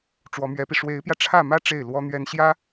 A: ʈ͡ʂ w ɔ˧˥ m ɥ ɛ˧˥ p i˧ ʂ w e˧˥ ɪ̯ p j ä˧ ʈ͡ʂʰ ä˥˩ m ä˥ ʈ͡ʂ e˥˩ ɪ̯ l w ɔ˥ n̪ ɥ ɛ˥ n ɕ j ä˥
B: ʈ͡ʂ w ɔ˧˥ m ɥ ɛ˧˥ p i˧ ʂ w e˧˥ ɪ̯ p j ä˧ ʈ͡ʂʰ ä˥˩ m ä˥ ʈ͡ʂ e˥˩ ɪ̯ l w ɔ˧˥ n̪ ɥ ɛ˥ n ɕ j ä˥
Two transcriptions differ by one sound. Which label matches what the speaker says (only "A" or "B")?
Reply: A